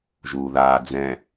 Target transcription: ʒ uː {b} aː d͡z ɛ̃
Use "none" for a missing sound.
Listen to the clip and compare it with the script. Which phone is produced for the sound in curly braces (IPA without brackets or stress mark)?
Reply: ð